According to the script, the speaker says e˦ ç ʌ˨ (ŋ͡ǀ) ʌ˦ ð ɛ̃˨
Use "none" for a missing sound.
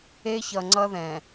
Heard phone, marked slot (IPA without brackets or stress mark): ŋ͡ǀ